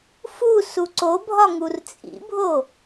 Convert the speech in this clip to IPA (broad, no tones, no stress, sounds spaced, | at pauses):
f u s u ǀ o bʱ ɒ ŋ u r t͡sʼ ḭ bʱ o